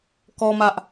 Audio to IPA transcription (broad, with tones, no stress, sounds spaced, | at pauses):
k ɔ˦ m ä˦ ʔ